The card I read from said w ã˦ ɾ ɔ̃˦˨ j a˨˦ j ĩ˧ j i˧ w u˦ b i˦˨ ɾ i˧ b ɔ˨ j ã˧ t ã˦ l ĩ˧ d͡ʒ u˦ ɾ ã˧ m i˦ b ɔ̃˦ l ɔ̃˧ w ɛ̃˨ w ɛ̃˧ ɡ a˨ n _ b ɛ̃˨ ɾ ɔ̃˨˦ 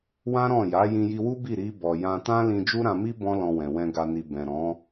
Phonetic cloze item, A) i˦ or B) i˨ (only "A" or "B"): B